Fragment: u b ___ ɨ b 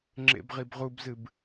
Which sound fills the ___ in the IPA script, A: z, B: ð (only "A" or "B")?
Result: A